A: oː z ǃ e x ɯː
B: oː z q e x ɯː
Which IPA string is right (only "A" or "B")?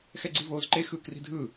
A